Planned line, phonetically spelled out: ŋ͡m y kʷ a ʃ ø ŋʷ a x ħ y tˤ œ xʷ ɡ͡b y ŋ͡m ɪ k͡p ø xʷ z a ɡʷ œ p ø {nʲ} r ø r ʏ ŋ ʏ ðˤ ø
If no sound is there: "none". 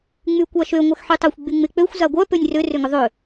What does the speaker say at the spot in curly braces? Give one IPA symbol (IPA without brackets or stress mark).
nʲ